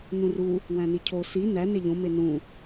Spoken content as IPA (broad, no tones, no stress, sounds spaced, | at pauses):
n ũ r u | w æ̃ n i cʰ o s i n æ n e ʎ õ m e n ũ